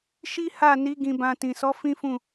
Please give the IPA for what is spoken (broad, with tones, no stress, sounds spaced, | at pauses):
ʃ i˦ h a˦˨ n i˨˦ ɡ ĩ˧ b ã˧ t ĩ˨ s ɔ˨˦ f ĩ˦ f ũ˦˨